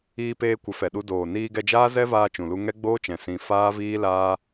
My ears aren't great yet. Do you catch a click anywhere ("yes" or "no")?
no